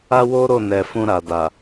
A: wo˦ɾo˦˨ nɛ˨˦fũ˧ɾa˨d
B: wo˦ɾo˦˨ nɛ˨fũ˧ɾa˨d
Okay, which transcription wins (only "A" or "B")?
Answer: B